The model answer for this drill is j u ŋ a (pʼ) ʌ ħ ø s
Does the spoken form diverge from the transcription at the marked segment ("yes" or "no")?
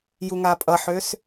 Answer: no